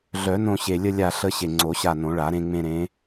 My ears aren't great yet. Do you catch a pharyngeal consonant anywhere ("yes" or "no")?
no